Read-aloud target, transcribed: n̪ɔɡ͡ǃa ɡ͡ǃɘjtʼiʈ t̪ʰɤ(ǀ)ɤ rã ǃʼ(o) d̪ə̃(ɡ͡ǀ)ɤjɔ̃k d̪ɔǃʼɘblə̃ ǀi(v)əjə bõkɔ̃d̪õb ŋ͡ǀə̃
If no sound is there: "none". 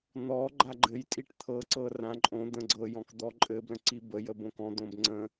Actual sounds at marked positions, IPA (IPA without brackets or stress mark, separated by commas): ǀ, õ, ɡ͡ǀ, b